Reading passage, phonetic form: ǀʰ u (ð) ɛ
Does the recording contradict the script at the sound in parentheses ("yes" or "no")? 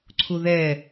no